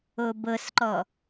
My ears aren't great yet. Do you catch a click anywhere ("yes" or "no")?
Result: yes